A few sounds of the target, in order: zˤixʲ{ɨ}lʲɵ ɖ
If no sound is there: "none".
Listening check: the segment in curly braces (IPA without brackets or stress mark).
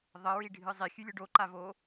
ʉ